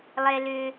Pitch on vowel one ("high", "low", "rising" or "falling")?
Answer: high